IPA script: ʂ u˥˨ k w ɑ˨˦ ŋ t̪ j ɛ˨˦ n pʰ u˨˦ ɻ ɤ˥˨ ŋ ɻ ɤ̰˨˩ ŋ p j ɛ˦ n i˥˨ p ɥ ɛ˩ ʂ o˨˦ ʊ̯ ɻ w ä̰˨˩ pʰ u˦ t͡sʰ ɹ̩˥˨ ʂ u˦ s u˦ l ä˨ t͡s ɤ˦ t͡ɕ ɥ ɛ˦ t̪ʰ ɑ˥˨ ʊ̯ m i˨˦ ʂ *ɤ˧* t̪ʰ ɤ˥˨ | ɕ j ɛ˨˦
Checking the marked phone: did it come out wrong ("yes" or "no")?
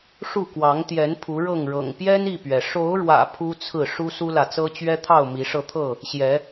no